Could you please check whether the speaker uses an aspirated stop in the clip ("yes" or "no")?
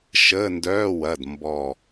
no